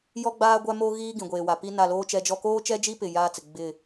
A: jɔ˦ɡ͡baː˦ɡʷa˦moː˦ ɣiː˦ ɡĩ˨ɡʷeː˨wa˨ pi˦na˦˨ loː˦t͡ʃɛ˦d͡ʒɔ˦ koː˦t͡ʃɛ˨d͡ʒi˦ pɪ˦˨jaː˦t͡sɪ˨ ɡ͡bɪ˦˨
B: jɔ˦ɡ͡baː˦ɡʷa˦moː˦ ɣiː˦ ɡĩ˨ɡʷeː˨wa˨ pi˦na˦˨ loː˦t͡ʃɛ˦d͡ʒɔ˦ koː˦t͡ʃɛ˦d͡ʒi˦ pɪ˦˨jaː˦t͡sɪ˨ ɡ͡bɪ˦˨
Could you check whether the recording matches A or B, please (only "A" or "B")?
B